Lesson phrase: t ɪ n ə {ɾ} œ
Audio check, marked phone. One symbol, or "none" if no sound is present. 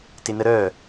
ɾ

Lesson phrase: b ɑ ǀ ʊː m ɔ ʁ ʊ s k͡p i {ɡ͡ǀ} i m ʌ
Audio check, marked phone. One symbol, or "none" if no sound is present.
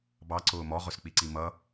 ǀ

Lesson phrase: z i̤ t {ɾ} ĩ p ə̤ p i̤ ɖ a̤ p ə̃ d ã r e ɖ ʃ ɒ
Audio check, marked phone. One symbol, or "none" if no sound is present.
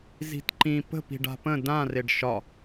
ǃ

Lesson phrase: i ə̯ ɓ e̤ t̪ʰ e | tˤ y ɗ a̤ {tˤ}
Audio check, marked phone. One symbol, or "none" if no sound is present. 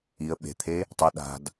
d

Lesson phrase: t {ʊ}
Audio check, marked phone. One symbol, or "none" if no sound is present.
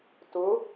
ʊ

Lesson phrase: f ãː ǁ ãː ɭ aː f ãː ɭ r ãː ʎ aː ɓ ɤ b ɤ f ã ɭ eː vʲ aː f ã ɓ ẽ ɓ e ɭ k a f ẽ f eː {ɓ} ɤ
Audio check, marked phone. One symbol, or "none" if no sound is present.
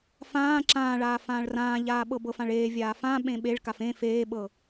ɓ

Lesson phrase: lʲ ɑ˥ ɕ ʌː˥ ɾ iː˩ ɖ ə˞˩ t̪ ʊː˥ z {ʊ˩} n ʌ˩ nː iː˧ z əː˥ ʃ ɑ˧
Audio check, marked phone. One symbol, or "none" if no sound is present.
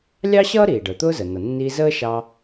ə˩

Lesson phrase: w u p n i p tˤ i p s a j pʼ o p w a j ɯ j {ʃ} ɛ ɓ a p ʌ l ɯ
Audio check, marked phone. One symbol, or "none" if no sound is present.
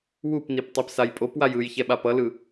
ç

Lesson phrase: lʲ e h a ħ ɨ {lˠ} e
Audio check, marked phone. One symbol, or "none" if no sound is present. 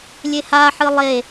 lˠ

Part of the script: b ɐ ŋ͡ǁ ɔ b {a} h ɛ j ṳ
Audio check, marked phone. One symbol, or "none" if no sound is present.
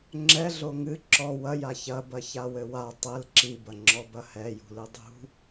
ɐ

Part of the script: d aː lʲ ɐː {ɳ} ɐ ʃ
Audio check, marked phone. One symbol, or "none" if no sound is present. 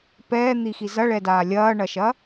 ɳ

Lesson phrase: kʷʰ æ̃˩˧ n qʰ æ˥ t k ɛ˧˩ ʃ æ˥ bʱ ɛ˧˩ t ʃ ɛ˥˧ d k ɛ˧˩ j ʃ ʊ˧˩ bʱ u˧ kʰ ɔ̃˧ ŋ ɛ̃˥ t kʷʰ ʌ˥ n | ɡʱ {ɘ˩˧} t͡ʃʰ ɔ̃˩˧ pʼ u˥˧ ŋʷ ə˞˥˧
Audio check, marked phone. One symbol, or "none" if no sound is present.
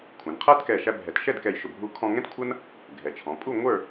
ɛ˩˧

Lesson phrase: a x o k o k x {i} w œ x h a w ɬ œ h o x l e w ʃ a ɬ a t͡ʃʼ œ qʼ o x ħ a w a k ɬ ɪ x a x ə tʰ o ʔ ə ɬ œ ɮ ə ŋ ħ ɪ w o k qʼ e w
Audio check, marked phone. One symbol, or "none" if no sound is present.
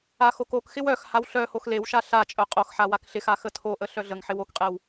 ɪ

